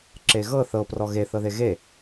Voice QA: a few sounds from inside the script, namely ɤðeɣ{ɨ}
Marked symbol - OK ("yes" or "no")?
no